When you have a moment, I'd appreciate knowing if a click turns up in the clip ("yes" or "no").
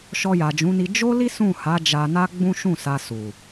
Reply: no